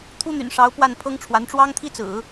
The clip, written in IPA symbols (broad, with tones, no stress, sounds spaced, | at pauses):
t̪ʰ u˥ n̪ y̰˨˩ n ʂ ɑ˧˥ ʊ̯ p w a˥˩ n pʰ ɤ˥ ŋ ʈ͡ʂʰ w a˧˥ n ʈ͡ʂ w ɑ˥ ŋ t̪ʰ i˥ t͡s ɹ̩˨˩˦